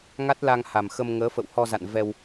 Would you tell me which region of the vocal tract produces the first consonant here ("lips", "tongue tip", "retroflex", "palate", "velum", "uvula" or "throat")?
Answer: velum